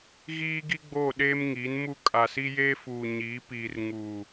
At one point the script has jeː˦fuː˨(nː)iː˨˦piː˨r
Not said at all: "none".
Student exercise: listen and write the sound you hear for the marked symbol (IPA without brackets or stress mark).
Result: ɲ